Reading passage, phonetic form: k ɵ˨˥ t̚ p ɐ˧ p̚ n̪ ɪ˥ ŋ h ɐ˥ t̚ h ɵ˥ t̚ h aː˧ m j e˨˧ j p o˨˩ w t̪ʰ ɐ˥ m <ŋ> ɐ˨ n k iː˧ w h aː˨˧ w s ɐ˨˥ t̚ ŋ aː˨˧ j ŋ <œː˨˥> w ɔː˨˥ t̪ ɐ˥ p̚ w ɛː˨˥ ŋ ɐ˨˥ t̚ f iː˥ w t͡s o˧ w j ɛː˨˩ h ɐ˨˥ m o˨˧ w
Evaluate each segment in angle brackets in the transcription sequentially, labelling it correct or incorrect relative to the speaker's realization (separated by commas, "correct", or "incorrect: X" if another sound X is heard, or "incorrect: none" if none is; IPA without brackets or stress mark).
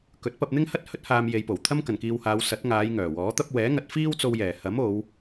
incorrect: k, incorrect: œː˨˩